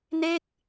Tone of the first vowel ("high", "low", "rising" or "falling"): falling